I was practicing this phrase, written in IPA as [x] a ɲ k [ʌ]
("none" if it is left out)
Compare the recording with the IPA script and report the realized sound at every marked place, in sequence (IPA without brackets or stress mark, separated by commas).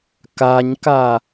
k, a